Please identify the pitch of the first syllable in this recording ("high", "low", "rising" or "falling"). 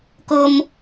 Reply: low